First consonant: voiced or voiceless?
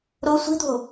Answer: voiced